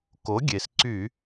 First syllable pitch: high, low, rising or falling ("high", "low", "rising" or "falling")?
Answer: rising